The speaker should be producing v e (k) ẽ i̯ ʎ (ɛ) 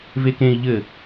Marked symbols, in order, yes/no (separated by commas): yes, no